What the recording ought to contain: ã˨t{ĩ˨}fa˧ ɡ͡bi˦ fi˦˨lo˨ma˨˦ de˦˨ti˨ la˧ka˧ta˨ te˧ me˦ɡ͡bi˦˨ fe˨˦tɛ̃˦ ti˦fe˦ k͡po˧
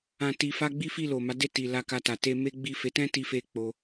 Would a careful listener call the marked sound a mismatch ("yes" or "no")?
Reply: yes